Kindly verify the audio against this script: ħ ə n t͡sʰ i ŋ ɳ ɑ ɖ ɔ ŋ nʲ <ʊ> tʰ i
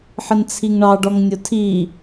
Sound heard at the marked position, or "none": ʊ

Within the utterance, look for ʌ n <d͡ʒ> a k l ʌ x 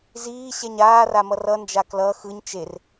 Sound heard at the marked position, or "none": d͡ʒ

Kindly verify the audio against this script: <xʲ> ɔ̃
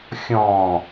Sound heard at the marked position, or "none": xʲ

